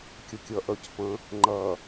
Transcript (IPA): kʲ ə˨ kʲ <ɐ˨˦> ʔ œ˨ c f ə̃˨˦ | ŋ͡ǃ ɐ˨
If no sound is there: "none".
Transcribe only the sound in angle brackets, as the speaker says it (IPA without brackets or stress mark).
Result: ɐ˨˦